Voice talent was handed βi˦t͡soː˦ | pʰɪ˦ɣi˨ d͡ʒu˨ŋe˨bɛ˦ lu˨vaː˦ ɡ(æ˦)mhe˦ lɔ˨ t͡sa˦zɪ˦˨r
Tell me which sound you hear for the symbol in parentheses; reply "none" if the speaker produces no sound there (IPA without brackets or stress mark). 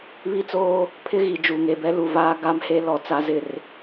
a˦